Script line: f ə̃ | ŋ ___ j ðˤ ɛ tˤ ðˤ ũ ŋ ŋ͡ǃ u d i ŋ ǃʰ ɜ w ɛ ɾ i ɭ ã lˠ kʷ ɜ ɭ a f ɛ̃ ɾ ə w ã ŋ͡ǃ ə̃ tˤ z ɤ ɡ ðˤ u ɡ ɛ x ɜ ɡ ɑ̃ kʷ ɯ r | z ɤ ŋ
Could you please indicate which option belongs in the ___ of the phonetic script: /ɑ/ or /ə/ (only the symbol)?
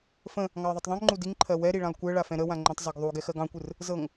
ɑ